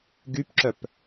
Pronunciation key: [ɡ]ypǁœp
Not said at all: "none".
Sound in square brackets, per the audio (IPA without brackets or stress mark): ɡ